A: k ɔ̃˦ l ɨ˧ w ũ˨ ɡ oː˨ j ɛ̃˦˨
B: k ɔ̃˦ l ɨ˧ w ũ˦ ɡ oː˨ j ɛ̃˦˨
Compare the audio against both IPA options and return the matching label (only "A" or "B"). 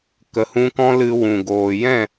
A